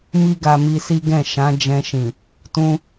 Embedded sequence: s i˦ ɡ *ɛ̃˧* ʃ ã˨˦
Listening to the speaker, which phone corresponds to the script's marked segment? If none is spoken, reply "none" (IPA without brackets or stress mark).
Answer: ɛ̃˦˨